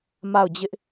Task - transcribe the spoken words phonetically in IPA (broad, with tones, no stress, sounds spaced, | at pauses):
m a˦˨ ʊ̯ d͡ʑ ɪ˦ ʔ